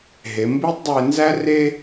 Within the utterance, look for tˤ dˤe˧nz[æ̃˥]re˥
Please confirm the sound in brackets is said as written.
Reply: no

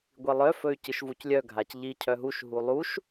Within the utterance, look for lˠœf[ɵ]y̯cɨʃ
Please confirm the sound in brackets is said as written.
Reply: yes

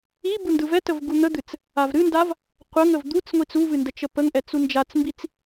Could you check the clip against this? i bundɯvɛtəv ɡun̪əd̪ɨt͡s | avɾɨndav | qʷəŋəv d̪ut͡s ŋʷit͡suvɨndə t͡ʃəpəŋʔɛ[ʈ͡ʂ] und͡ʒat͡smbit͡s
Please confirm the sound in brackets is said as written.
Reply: no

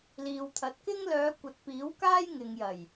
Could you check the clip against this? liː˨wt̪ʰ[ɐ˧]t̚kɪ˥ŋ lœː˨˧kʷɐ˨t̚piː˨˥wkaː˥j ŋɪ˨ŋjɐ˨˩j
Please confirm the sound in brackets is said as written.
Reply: no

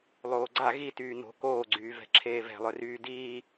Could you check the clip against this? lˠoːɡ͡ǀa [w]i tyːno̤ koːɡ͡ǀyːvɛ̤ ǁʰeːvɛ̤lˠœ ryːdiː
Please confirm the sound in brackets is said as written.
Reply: no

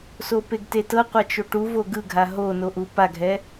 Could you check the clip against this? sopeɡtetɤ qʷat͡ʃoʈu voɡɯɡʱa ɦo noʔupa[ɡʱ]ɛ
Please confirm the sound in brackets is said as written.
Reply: yes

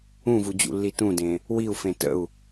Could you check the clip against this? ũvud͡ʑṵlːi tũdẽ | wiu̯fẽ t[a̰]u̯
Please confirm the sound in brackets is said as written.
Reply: no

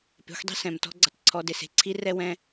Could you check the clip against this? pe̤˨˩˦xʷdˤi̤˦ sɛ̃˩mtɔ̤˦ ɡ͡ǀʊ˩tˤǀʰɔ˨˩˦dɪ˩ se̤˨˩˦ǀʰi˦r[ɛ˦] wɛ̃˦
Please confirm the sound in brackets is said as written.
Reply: yes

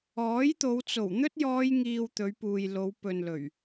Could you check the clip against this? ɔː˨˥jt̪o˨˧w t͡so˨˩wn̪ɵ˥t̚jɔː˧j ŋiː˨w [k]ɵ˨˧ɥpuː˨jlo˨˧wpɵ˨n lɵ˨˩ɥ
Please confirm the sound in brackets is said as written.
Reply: no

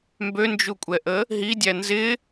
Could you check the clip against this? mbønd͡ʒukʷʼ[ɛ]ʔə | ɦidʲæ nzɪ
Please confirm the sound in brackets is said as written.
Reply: yes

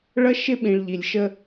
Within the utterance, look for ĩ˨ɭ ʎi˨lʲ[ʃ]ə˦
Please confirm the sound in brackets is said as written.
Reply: yes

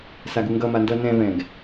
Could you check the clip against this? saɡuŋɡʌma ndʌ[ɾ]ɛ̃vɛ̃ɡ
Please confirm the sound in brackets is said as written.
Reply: no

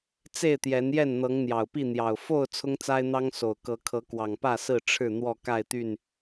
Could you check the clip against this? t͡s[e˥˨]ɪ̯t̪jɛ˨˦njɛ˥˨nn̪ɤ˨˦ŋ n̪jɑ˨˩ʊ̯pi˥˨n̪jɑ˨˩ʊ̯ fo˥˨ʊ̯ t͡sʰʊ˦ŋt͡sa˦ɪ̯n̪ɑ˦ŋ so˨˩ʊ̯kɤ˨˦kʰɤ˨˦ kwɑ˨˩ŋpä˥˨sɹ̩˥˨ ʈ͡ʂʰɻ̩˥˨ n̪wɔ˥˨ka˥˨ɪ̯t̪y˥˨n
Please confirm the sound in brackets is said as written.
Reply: yes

